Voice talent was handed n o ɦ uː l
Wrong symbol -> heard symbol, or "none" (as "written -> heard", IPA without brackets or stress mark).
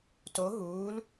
n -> t